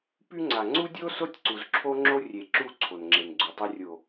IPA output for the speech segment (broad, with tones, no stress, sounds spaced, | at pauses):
p y˦ ŋ͡ǀ a˨ ŋ͡ǀ u˦ dʲ o˦ s o˦ tʲ ǀ u˨ z ǁʰ o˦ ŋ͡ǁ o˦ rʲ e˨ ǁ u˦˨ ǀʰ o˨ n ŋ͡ǁ e˨ n ɡ͡ǀ u˨ tˤ ɛ˦ rʲ o˨